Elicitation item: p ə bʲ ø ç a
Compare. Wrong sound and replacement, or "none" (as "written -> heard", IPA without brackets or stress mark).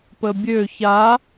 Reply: none